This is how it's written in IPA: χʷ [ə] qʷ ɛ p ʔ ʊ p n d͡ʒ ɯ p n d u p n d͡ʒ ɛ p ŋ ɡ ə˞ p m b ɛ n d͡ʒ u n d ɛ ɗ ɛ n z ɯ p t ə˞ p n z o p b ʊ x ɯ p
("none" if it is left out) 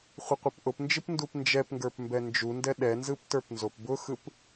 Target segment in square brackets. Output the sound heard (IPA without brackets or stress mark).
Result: ə